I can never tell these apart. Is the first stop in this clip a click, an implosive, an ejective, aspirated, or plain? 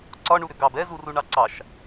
click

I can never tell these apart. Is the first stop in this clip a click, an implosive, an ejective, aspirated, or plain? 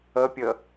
plain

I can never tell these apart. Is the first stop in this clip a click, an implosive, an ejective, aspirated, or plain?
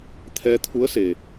aspirated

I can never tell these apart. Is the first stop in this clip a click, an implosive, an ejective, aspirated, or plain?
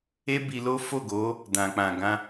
plain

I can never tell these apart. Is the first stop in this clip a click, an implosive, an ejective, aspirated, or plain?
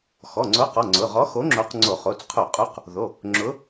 click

